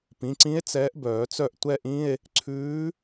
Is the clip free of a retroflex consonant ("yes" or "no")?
yes